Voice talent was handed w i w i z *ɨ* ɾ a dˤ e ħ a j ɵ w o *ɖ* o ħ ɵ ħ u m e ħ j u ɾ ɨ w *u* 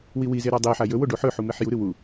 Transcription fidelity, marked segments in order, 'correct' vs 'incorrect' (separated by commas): incorrect, correct, correct